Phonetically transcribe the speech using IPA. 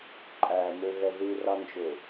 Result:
ǃʼ æ m ø ɣ ɛ ð i r ɑ n d͡ʒ ø

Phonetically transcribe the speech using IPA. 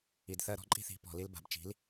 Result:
i˨ d θ ɜ˧ ɾ ɔ̤˦ ǃʼ i̤˦ θ i̤˨˦ p ɔ̤˨ l i˧ l b a̤˨ b t͡ʃ i̤˨˦ l

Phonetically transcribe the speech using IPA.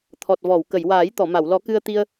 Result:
t̪ʰ ɔ˨˩ t̚ v ɔ˨˩˨ w k ə˨˩˨ j w aː˨˩˦ j t̪ ɔ˨˩˨ m a˨˩˨ w l ɔ˨˩˦ k ɨ˧ ə̯ t̪ i˧ ə̯

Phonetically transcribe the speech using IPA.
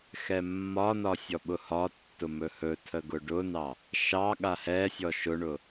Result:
x ɛ mː ɒ n ɒ sʲ ɔ ɓ ʊ h ɒ tː ʊ m ɵ h ɵ tʰ ə ɡ ʊ ɖ ʊ n ɑ | ʃ ɑ ɠ a h ɛ sʲ ɔ ʃ ʊ ɳ ʊ

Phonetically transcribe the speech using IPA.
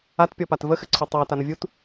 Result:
a t pʲ ɔ p a t v ə x ɘ ǀʰ ɔ tˤ ɑ t a n ə vʲ u t

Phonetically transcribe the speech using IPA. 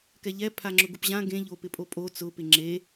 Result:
k ɛ ʎ ɛ pʰ a ŋ͡ǁ ʊ ɡ ʊ p ʑ ã ɡ ẽ ʎ o p ɪ pʼ o pʼ o t͡s ʊ p ɪ ŋ͡ǁ e

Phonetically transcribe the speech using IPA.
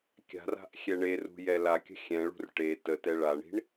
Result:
kʲ a̤ r a̤ ʔ xʲ ɛ ɳ e r ṳ j ɛ l a kʲ ə̤ xʲ ɛ̃ ɭ ṳ r ʈ e t ə t ɛ ɭ a ɳ i̤ ɳ

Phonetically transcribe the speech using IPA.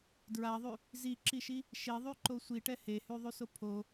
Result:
d ɹ a ðˤ y | z i ǁ i ʃ i | ʃ e ðˤ y ǃ o sʷ i ʈ ɛ h e h y ðˤ y s o pʰ o

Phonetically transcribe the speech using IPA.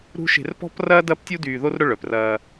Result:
ɾ ṳ˦ ʃ e̤˨ r p ɔ̤˦ p r ɐː˦ d ɐ˦ p tʲ u˦ d yː˨ ð o˦ r ɾ ʊ˦ ɭ œ˨ p r ɐː˦

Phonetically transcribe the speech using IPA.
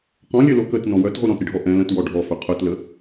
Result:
q ɔ̃ lʲ œ l o k ə t n ɔ̃ w œ t ʁ u ɾ ɔ̃ t ɾʲ ə ɖʱ ɔ ʔ ɛ̃ l ə̃ t w ɔ ɖʱ ɔ f ɵ qʰ œ t l ə

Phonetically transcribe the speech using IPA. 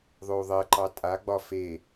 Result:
ðˤ o u̯ ðˤ ɜ ǃ ɑ tʼ a ɡ͡b ɒ f e

